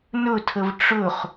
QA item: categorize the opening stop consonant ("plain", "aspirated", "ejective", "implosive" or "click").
aspirated